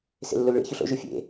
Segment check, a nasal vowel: absent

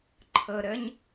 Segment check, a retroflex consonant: absent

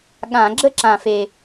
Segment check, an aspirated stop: absent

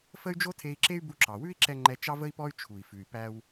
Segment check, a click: present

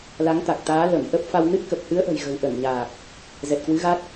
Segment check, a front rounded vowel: absent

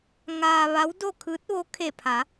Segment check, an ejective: absent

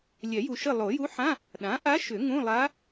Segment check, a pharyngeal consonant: present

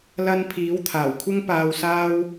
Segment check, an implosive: absent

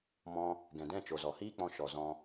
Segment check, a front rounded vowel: absent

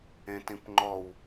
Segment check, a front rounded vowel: absent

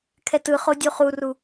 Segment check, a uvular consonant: present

